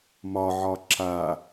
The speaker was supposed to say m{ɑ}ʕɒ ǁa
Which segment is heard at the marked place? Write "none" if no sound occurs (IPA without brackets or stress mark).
ɒ